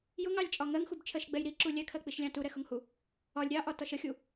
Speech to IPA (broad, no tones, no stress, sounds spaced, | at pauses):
j ʊ ŋ ɑ lʲ t͡ʃʼ ɒ ŋ ɜ ŋ x u b t͡ʃʰ ɜ ʃ ɡ͡b ɛ j ɾ i ǁ u lʲ ɛ kʰ ɜ k͡p i ʃ lʲ ɑ̃ t u ɾ ɛ x ʊ ŋ h u | ɒ lʲ ɾʲ ɑ ʔ ɒ t ɒ ʃ ə xʲ u